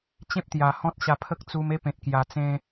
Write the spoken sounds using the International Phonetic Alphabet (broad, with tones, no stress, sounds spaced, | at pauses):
t͡ɕ ẽ˦ p̚ t̪ j a˨˩ h ɔ̃˦ t̚ ɕ a˧ pʰ ə˦ k̚ t͡s u˧ m e˦ p ẽ˨ t̚ k j a˨˩ t͡s ẽ˦